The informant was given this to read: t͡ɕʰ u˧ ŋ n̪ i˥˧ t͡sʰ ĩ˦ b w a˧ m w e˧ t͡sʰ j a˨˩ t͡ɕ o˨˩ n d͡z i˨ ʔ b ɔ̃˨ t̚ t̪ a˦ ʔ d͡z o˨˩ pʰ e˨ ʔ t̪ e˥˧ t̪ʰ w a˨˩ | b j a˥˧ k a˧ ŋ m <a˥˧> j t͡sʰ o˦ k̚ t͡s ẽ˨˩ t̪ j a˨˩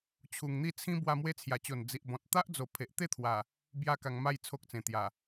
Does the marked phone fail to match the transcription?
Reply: no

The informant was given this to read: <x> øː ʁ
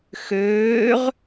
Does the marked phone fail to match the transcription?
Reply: no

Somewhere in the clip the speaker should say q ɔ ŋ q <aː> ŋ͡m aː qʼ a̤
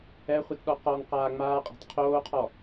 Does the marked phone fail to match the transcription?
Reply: no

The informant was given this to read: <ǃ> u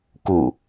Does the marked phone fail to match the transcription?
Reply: yes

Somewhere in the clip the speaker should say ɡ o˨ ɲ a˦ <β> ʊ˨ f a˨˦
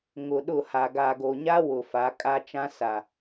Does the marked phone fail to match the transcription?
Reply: yes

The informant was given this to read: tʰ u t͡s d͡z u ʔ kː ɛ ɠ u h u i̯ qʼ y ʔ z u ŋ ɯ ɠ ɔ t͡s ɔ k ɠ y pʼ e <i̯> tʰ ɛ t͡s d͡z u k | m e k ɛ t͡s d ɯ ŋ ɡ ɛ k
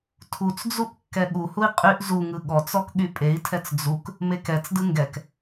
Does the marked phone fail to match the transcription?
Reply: no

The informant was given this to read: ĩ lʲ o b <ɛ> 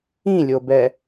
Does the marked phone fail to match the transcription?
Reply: no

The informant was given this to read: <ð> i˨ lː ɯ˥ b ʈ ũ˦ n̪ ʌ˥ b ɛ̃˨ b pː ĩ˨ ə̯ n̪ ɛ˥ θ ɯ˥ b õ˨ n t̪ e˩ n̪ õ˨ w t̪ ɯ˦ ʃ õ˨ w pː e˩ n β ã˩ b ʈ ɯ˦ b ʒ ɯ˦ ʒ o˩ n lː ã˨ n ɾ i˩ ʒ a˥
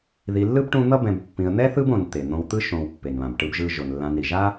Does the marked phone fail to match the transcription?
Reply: no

